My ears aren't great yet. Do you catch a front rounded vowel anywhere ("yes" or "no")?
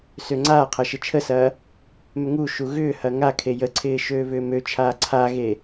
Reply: yes